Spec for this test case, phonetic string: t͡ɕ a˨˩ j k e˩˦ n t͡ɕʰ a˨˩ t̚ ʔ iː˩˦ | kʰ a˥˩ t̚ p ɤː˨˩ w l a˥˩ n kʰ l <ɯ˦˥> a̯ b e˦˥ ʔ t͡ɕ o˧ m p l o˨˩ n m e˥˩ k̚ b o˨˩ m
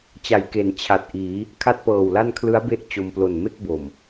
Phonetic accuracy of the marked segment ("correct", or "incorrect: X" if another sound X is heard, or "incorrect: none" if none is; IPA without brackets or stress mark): correct